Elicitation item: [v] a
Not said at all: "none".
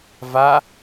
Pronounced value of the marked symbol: v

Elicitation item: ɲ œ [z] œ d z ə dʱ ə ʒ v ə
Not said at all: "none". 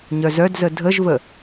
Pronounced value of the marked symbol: z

